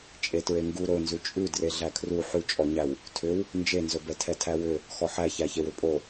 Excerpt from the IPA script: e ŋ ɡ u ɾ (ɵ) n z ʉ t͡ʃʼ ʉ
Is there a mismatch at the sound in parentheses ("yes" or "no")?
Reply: no